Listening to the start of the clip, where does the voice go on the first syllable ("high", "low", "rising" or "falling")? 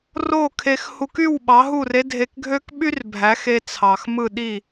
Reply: falling